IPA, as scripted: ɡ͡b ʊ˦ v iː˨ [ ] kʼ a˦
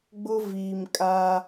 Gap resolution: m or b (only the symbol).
m